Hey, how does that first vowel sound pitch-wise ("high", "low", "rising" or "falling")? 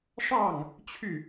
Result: falling